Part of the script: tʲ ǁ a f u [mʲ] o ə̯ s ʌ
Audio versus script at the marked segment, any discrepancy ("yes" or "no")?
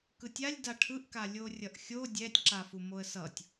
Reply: yes